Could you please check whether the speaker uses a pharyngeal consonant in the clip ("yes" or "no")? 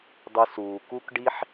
yes